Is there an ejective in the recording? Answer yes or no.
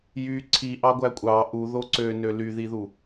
yes